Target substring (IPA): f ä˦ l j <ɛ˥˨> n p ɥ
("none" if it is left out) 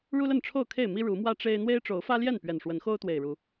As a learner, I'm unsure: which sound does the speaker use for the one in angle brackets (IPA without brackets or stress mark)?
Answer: ɛ˥˨